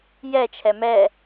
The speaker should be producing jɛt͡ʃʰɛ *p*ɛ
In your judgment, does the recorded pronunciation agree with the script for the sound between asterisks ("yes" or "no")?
no